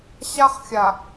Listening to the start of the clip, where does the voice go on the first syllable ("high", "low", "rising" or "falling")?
high